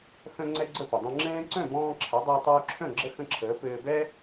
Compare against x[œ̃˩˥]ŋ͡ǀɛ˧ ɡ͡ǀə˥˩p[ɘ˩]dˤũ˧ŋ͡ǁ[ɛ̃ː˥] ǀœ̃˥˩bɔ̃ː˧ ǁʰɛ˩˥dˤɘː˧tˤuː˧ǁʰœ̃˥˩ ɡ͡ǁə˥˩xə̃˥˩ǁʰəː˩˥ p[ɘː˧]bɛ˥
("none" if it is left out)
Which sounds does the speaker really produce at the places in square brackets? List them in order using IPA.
œ̃˧, ɘ˩, ɛ̃ː˥, ɘː˧

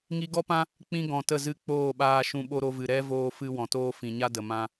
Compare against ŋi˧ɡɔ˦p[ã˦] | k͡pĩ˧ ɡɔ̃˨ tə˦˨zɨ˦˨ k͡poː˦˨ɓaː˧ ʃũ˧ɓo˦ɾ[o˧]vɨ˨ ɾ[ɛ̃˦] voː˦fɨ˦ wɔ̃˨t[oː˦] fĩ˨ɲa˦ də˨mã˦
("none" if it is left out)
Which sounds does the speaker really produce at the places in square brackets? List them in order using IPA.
ã˦, o˦, ɛ˦, oː˦

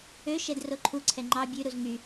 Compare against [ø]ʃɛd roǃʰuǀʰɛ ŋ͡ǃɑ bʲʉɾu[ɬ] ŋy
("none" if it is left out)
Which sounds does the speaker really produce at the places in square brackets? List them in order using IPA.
ø, z

